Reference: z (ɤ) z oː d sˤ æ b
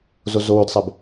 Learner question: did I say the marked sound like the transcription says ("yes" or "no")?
no